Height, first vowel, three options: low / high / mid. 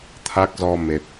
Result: low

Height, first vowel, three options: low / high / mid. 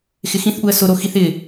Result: high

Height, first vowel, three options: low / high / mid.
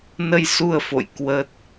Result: mid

